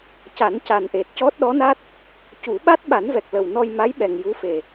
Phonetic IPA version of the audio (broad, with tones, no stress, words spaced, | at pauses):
ca˨˩˦nca˨˩nʔe˨˩t̚ cɔ˦˥t̚ɗɔ˧˥na˦˥t̚ | cu˨˩˦ɓa˦˥t̚ ɓa˨˩˦nvɛ˨˩k̚lə˨˩w nɔ˧jma˧˥jɓɛ˨˩ŋ ju˧˥fe˨˩